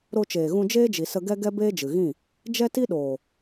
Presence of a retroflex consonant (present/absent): absent